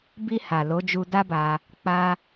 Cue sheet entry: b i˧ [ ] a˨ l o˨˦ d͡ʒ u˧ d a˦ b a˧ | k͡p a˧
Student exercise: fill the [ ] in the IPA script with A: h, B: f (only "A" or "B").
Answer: A